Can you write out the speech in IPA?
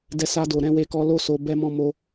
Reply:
d ɛ˧ s a˧ d o˨ ɾ ɛ̃˧ w e˧ k ɔ˧ l o˦ s o˧ b ɛ˧ m ɔ̃˧ m o˧

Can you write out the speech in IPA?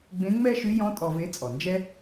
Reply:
ɡ͡b ẽ˧˥ ŋ͡m ɛ˥ ʃ y˧˥ j ɔ̃˧˥ tʼ ɔ˧ v e˧˥ t͡sʼ ɔ˩ n d͡ʒ ɛ˥

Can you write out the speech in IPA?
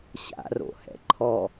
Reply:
ɕ a̰ r o̰ h ɛ̰ ǃʰ ɔ

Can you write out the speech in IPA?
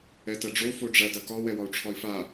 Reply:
ɛ t ɐ ɖ͡ʐ o f o ɖ͡ʐ ɐ d ɐ k ɒ w ɛ w ɒ u̯ ʈ͡ʂʰ ɒ i̯ f a

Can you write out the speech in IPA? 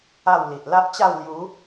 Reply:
a˥˧ w l i˨ ʔ l a˦ ʔ t͡ɕ a˥˧ w l j u˨˦

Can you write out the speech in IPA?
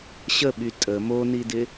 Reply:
ɕ ə ɓ y tʼ ə m o n i d ɪ

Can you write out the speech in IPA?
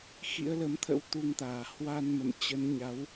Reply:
x ḭ˧˥ ə̯ l ə˨˦ m t̪ʰ ə̰˧˥ w t̪ u˧ ŋ t̪ aː˧˩ h w a˧ n m ə̰˧˨ m t͡ɕ ə˨˦ n ɲ a˨˦ w

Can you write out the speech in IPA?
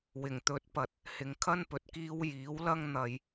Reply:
w ɪ˨˩ ŋ t̪ ɵ˨˥ t̚ p ɐ˨ t̚ | h ɪ˨ ŋ kʰ ɐ˥ n p ɵ˨ t̚ k iː˧ w j iː˨˥ w l ɐ˥ ŋ n̪ ɐ˧ j

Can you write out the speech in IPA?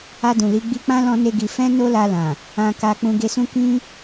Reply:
a˧ d ũ˨ l i˨˦ ɡ͡b i˧ k͡p ã˦ l ɔ̃˦ n e˦ ɡ i˧ f ɛ̃˦ n o˦ l a˧ l ã˨ | ã˧ k a˧ k͡p ũ˧ ɡ e˧ s ũ˦ k ĩ˦

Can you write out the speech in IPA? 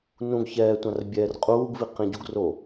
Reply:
n ũ ɡ ç ɛː tʷ ã r bʲ ɛː r qʼ uː ɡ v i q ĩ ɟ u ɡ r o

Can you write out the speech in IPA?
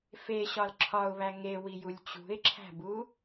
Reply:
f e ɕ ɒ l ǁʰ ɒ ʊ̯ β æ ŋ e w i j u lʲ t͡ɕ ṳ ɪ̯ ǁʰ æ̤ b u

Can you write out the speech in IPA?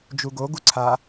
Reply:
d͡ʒ u ɡ o ɡ u ǀʰ a

